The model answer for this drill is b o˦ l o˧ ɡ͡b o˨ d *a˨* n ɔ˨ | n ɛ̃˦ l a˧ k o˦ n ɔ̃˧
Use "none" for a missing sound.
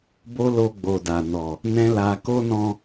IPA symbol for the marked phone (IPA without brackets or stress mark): a˨